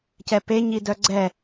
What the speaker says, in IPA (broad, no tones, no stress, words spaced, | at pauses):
cɛpe ɲidœɡ͡ǀɛ